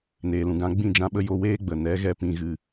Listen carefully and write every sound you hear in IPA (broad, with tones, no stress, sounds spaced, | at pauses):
n eː˨ l ũ˨ ɡ ã˧ ɡ͡b ĩ˦˨ d͡ʒ ã˧ ɓ ə˧ j o˧ w eː˦ ɡ͡b ə˨ n ɛ˨˦ ɣ ɛ˧ p ĩ˧ ɣ ɨ˧